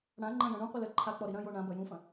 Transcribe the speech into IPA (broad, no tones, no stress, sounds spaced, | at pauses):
ɽ ã ŋ͡ǃ ɐ̃ j ɐ̃ ɳ ũ qʷ ɨ l ɘ ǃʰ a k͡p ɔ ɾ i ɾ ɐ̃ j o ɳ ã b ɐ j ũ f ɐ̃